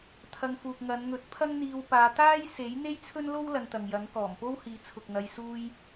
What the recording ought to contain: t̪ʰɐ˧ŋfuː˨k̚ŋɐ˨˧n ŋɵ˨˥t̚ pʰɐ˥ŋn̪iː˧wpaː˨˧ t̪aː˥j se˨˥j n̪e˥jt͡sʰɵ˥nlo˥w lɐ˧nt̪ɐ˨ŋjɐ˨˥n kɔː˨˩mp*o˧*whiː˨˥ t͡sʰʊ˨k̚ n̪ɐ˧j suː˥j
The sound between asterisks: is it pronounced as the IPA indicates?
no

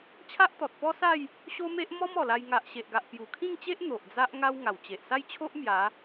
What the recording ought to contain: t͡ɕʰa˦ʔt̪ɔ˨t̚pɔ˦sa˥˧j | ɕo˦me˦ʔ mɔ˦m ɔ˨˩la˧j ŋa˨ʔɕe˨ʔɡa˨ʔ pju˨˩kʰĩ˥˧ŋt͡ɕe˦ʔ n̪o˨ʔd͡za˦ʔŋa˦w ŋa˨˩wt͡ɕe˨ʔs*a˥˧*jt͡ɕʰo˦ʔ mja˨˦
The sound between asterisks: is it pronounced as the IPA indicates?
yes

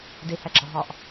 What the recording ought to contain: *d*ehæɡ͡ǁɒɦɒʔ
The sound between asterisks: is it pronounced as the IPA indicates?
yes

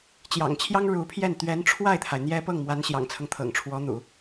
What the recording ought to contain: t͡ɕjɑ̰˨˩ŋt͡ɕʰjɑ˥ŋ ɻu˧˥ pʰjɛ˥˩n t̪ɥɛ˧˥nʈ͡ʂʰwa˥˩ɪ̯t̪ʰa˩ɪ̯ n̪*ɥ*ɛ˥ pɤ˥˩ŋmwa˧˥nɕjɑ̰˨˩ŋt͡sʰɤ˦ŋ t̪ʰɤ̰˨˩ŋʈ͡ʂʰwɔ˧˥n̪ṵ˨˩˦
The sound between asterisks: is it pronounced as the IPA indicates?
no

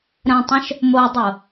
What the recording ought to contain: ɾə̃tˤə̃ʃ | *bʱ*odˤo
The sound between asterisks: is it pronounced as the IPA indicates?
no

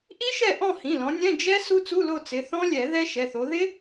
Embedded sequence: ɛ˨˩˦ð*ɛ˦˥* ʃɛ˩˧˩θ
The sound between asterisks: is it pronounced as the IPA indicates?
yes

